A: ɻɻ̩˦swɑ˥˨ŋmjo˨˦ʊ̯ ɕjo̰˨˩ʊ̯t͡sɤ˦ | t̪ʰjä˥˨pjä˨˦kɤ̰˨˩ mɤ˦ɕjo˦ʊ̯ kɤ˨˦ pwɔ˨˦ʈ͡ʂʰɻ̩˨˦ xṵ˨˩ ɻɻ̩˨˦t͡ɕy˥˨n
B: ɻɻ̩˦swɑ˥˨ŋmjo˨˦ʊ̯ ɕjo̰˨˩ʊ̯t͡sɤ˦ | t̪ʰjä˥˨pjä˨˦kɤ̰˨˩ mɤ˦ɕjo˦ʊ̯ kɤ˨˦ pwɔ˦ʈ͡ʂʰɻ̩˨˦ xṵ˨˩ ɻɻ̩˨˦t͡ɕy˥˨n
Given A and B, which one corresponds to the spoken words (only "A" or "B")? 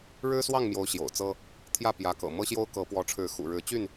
A